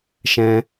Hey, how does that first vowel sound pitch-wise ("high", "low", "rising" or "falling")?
high